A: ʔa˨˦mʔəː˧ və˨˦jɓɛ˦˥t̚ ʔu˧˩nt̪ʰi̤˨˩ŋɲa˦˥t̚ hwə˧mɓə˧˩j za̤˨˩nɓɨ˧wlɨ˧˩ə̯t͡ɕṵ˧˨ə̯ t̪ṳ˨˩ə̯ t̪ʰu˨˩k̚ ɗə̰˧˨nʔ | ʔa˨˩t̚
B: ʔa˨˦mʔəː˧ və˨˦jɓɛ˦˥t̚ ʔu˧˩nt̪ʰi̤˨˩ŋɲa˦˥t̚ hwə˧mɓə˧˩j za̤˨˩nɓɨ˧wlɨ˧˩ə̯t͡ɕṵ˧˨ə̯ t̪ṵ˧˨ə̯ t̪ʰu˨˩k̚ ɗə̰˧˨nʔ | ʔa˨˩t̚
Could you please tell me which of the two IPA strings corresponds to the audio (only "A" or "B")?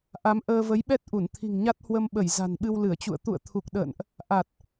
B